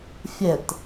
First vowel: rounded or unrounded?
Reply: unrounded